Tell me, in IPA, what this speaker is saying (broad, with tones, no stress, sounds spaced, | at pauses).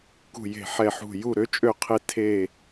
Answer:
k ṳ˦˨ j e̤˦˨ ħ ɛ˦˨ ħ ṳ˦˨ j u˦˨ ɾ ø˧˥ t͡ʃʼ ø˦˨ qʰ e˦˨ tʰ e˦˨